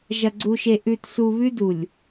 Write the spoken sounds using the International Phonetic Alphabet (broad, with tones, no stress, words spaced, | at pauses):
ʒɐ˨ɡ͡ǀu˨ʃe˨ ʔʉ˨tsu˨ βʉ˦du˨lʲ